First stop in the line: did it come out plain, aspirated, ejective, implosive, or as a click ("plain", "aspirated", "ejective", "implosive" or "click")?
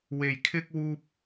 aspirated